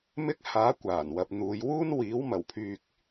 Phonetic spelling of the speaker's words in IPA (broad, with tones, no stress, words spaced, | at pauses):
mɪ˧k̚ haː˨˥kʷaː˨˩n wɐ˨p̚n̪uː˨˧j wuː˥n wiː˨˥w mɐ˨˩wpʰyː˨k̚